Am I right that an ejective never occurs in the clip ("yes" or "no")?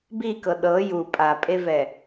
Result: no